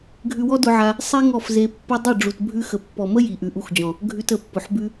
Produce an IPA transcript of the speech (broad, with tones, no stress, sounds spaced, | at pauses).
ɡʱ ʉ˧ w ɔ˦ d ʊ˧ ʕ a˧ | sˤ i˦ ŋ ɔ˦˨ f z e˧ pː ʊ˦ dˤ i˦˨ ɖ͡ʐ u˨ t bʱ ʉ˧ x ə˨ pː ɔ˨ m ə˦ j i˨ ʔ ʉ˨ ʔ u˧ x d͡ʑ ɔ̃˨ | ɡʱ ʉ˧ t ə˨ pː ʊ˨ ħ b ʉ˧